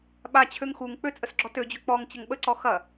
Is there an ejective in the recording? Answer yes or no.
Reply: yes